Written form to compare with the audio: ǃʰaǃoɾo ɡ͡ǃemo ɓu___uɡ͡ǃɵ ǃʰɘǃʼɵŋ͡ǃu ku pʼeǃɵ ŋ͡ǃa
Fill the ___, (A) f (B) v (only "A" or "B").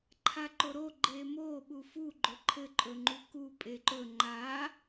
A